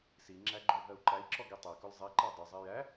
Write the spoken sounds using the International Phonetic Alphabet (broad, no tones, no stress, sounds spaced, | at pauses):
s i ŋ͡ǁ æ ɡ͡ǃ ʊ ɦ ɜ u̯ ǃ æ i̯ ǁ ɔ ɡ i tˤ æ k ʊ l zˤ e ǃ æ dˤ ʊ zˤ e j æ